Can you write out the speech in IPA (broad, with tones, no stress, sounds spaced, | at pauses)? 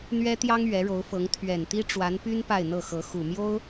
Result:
n̪ ɥ ɛ˥ t̪ j ɑ˥ ŋ ɥ ɛ˧˥ ɻ o˧˥ ʊ̯ f ɤ˧˥ ŋ t̪ʰ ɥ ɛ˨˩ n t̪ i˥ ʈ͡ʂ w a˧˥ n p y˥ n p a˥˧ ɪ̯ n̪ ɤ˥˩ x ɤ˧˥ x u˨˩ m j o˥ ʊ̯